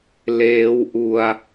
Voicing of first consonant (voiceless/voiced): voiced